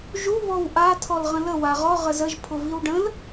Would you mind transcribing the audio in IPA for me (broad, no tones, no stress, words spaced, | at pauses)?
ʒu βɔwʔa tʰɔlʁə̃lə waʁɔ ʁəzəʒ pʰʊviwɖə̃l